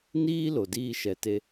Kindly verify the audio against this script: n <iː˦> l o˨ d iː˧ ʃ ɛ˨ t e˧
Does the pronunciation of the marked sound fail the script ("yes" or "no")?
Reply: no